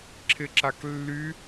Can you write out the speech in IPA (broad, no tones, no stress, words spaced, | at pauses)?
ǁʰɪǁaklːy